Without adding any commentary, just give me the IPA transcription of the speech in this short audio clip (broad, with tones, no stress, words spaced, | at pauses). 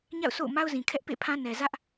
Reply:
ɲa̰˦˨ʊ̯so̰˦˨ʊ̯ ma˦ʊ̯zĩ˨ kʰɛ˦ʔpḛ˦˨pʰã˦ nɛ˨zä˦ʔ